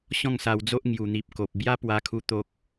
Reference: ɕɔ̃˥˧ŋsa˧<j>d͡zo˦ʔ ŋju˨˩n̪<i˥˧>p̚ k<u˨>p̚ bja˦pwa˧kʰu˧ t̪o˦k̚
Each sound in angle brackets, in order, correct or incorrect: incorrect: w, incorrect: i˨, incorrect: o˨

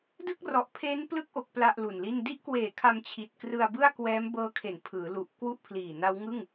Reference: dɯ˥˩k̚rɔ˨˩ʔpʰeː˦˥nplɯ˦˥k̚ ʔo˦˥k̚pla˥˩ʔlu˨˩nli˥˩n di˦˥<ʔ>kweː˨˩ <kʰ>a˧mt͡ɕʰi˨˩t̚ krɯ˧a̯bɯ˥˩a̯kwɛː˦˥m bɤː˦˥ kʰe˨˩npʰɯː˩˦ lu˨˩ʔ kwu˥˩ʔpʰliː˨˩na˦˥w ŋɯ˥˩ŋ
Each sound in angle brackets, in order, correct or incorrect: correct, correct

